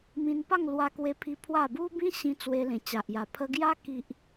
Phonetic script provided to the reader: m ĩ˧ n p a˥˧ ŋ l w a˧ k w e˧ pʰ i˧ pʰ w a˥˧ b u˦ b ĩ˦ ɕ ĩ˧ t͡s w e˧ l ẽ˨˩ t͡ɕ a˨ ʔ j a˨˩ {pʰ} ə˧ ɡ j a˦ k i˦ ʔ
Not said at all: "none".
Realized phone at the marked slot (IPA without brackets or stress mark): pʰ